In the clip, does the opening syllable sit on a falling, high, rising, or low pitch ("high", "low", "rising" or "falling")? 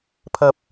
high